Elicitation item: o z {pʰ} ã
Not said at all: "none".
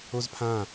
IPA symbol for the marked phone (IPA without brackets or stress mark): pʰ